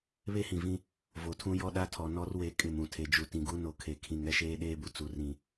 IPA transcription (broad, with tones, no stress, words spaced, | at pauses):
βe˦hĩ˨vĩ˦ | vo˨tʰũ˦jɔ˦ɗa˦ tʰɔ˨ nɔ˦rwe˨˦ kʼɪ˨mũ˨tʰe˨ d͡ʒu˨tĩ˨ɡu˦ no˨kʰe˨kʰĩ˨ŋ ɛ˦ʃeː˦ɗeː˦bu˨ t͡su˨rĩ˨